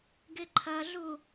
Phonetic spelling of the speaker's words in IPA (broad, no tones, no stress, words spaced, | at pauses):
ɡɪǃʰɐɮu